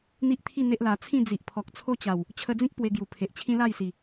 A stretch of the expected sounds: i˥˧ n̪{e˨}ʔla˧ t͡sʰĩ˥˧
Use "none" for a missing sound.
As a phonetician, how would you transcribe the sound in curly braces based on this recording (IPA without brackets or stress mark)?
e˦